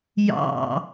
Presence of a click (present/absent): absent